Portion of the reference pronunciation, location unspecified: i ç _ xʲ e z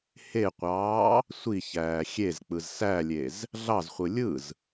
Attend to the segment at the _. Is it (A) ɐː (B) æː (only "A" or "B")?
B